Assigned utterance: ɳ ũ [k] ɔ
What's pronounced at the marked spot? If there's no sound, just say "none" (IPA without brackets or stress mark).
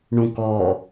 k